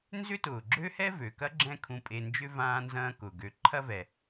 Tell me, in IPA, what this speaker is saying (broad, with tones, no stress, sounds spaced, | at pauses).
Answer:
n z ʏ˥ t ʊː˩ ɡ͡ǁ ø˥ h ɛ˥ v ø˩ k ɐ˥ ɡ͡ǁ ɛ̃˦ kʰ ũ˨ pʼ e˨ n d͡ʒ ʏ˥ v ãː˦ n z ɐ̃ː˦ k ʊ˩ ɡ ø˨ ǃʰ ɐ˦ v ɛ˩